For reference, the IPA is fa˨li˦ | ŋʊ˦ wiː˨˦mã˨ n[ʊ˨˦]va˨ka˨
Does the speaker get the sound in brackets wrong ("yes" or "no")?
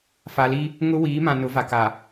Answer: no